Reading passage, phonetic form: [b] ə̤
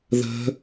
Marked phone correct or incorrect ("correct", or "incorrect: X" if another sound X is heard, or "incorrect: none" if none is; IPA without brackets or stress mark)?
incorrect: ð